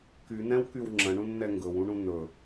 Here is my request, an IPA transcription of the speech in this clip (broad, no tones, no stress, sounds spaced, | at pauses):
k y n̪ ɛ̃ w k y w ŋ͡ǁ ə̃ ɳ ũ n n̪ ɛ ŋ ɡ ɵ w ũ ɳ ũ n̪ ɵ